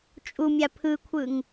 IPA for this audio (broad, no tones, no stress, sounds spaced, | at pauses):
t͡ʃʼ u mʲ a pʰ ɯ kʷʰ ɯ ŋ